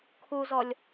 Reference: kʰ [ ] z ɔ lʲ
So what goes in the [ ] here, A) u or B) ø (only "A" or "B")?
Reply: A